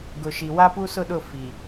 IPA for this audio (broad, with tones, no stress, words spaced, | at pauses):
ɡʊ˨ʃi˨ wa˦pu˦sʊ˦˨ɗʊ˦˨ fi˨